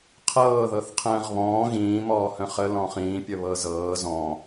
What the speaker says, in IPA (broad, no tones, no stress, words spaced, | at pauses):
qʰɤːðɤθ qʰə̃ːʁβɔ̃ː ɣĩːmɔːhə̃ χəlɔ̃ χĩːpʲə βɤzɤː zɔ̃